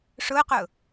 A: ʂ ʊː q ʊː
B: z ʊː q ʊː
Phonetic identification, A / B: A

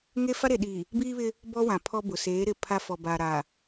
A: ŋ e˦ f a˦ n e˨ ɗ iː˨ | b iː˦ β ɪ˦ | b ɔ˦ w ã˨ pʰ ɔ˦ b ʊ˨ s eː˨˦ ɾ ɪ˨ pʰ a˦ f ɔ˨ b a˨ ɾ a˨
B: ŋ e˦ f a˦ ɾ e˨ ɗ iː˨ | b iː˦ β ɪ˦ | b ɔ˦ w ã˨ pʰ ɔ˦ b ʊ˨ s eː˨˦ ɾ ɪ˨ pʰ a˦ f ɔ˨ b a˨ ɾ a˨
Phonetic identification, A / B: B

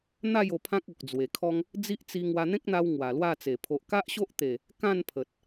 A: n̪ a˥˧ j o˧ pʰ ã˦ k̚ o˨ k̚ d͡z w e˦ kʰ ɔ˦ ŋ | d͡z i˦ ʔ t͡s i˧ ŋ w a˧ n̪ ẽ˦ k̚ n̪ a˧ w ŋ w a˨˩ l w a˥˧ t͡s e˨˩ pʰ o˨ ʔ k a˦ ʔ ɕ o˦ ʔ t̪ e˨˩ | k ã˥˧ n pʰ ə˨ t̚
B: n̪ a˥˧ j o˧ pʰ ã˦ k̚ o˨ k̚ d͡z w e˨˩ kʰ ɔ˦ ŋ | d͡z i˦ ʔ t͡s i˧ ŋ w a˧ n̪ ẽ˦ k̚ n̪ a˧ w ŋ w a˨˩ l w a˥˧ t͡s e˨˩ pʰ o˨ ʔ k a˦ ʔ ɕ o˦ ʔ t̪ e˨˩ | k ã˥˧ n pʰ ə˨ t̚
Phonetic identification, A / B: B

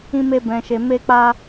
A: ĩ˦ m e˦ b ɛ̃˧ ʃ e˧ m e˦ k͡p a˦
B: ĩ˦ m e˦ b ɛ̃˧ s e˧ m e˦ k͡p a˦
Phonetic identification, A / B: A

